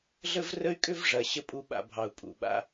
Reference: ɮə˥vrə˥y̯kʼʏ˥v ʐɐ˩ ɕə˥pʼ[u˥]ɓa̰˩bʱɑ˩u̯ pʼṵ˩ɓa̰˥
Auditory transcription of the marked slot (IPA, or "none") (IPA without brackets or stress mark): u˥